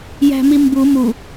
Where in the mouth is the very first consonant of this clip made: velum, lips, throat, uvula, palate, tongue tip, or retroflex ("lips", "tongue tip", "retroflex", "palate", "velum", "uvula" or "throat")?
palate